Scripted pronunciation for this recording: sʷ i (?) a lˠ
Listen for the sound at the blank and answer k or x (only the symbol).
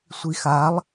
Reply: x